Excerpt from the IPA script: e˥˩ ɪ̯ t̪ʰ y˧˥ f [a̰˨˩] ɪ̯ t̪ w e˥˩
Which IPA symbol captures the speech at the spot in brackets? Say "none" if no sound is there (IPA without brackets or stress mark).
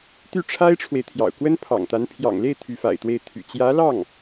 a̰˨˩